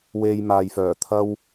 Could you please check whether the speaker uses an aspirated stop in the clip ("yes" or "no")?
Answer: yes